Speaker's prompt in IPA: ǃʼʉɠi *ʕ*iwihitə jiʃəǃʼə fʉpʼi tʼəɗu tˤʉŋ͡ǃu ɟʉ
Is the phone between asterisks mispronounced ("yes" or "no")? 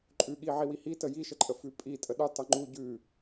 no